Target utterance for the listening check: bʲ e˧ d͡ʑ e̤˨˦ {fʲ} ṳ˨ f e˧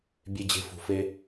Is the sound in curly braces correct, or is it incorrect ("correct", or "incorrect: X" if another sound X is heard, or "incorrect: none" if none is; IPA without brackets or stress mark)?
incorrect: f